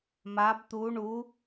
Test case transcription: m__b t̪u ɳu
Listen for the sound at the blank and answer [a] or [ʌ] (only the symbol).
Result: a